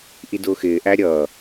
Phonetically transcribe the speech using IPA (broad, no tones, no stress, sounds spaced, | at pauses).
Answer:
ʔ i d ʊː x ɪː ʔ æ ɾʲ ʌ